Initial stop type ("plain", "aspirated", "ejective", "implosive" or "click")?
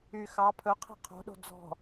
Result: aspirated